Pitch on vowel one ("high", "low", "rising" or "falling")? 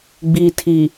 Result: low